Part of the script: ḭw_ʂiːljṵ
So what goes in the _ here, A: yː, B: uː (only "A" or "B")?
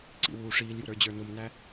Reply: B